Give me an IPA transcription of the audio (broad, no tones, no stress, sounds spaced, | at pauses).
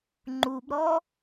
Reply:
ŋ͡ǃ u b ɾ ɔ